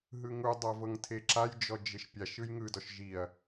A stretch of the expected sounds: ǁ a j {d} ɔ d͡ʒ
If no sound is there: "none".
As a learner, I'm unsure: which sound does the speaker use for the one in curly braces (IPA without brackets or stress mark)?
d͡ʒ